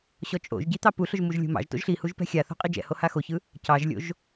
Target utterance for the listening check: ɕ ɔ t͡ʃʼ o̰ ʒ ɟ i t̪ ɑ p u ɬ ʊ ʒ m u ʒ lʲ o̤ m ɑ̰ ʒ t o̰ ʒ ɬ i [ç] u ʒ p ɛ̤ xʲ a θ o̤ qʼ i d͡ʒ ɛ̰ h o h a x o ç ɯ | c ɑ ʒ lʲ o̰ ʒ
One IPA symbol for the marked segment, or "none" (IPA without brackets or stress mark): h